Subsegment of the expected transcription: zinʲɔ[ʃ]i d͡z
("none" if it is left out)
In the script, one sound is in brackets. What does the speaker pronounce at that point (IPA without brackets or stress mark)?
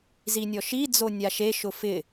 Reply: ʃ